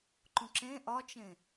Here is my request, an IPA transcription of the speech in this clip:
ǃ ũ ǁ ẽ ʔ ɒ t͡ʃ ẽ

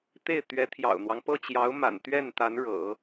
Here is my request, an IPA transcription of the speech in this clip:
t̪ e˥˩ ɪ̯ t̪ ɥ ɛ˧˥ t̪ʰ j ɑ̰˨˩ ʊ̯ n̪ w ɑ˦ ŋ p ɤ˥˩ t͡ɕ j ɑ˧˥ ʊ̯ m a̰˨˩ n t̪ ɥ ɛ˥˩ n t̪ a˧˥ n ɻ ɤ̰˨˩˦

